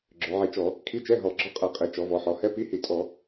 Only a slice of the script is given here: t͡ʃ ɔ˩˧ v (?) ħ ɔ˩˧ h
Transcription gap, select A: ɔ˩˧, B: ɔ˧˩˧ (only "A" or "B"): A